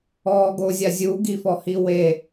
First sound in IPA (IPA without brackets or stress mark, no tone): ɔː